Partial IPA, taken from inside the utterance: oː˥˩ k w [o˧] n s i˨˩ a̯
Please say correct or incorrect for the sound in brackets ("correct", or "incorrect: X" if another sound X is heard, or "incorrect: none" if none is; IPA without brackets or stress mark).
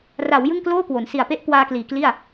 incorrect: o˩˦